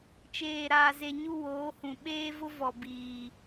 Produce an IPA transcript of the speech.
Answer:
t͡ʃeː˨ɾaː˨ze˨ ɲu˦woː˨˦hũ˨ ɓeː˦vʊ˦ vɔ˨biː˨

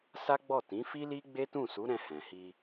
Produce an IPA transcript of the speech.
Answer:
sa˦ ɡ͡bɔ˦˨tĩ˨˦fi˦li˦ ɡ͡be˦tũ˦˨su˨˦ɾɛ̃˧ hɛ̃˨hi˧

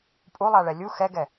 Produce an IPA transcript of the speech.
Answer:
pʼulˠaɭɛ lʲu xɛɡɛ

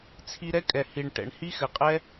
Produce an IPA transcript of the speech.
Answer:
t͡sʰi˧ɾɛ˦kʼɛ˨ hi˨ɳ ʈɛ̰˨ɳhi˦xɘ˨qʼɛ˦

